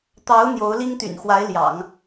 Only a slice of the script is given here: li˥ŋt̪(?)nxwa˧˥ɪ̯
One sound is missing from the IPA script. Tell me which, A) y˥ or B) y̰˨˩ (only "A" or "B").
B